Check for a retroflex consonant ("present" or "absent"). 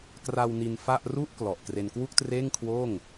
absent